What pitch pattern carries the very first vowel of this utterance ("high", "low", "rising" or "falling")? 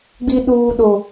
high